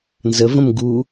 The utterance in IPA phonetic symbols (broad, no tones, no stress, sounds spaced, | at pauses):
n z ə v ə̃ m ɡ u